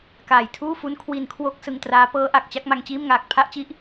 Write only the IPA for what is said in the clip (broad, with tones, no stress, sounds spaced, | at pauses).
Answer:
k aː˨˩ j tʰ uː˥˩ f u˦˥ n kʰ w i˧ n kʰ w o˥˩ k̚ s ɯ˧ ŋ t r aː˦˥ p ɤː˦˥ ʔ a˨˩ k̚ t͡ɕ a˥˩ k̚ m a˧ ŋ t͡ɕ iː˥˩ m ŋ aː˨˩ k̚ pʰ a˥˩ ʔ t͡ɕ i˥˩ ʔ